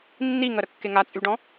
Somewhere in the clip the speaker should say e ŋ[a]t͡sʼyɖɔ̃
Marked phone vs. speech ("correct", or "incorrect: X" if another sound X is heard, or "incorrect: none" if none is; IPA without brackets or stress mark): correct